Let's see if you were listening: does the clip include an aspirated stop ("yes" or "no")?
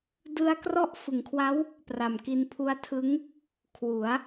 yes